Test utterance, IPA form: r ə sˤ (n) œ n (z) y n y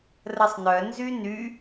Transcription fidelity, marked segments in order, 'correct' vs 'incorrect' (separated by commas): correct, correct